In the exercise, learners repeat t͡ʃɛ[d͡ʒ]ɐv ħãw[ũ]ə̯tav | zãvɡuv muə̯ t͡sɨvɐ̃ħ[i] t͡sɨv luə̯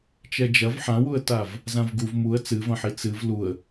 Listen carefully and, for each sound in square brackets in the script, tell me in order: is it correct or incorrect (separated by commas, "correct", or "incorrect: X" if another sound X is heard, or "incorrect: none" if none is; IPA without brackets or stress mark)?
correct, incorrect: u, correct